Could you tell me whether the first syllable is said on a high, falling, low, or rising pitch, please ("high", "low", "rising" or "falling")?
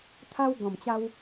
high